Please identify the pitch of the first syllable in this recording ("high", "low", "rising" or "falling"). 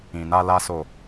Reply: low